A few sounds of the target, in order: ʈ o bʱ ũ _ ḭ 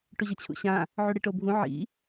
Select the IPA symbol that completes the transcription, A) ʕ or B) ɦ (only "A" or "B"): A